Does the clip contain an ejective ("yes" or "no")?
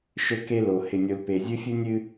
no